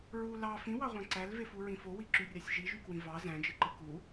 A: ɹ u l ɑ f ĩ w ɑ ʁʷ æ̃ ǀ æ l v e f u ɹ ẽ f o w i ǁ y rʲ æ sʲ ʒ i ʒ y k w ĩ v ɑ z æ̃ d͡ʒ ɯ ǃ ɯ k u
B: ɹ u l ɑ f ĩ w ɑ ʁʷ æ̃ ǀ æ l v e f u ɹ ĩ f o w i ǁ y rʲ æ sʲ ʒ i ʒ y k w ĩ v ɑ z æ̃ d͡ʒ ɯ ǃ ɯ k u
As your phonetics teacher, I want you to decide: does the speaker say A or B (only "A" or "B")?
B